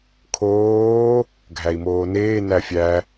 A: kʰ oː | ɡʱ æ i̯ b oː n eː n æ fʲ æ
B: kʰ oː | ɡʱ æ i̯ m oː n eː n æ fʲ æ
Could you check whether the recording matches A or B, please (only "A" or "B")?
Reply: B